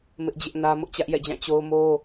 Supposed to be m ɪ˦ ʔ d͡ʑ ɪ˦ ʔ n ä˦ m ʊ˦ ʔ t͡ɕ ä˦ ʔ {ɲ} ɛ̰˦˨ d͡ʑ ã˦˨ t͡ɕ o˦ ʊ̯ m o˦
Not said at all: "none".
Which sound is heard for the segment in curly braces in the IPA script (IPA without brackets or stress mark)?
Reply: j